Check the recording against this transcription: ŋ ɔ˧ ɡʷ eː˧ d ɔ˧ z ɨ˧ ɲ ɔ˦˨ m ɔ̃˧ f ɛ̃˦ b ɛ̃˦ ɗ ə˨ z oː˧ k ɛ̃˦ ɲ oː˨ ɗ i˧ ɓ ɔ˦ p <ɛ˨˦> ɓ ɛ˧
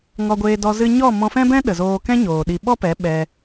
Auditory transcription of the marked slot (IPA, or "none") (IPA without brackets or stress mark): ɛ˨˦